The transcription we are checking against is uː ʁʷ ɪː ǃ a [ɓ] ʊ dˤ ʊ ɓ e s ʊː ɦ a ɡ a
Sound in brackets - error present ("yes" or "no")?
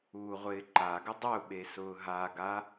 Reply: yes